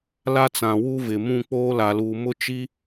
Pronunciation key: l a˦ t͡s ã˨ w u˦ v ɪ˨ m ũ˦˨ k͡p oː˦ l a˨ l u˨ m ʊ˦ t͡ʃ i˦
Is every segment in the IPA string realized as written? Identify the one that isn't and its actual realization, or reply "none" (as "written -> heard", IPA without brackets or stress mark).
none